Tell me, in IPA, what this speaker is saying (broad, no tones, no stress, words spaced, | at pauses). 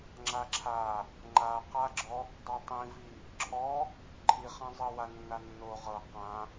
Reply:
ŋ͡ǁaǁʰa | ŋ͡ǃaqaɡ͡ǁɔ | dˤɤtˤĩvi | ǁʰɔ | ǃʰiχãzˤɤ wanːanːo ʁɤ qã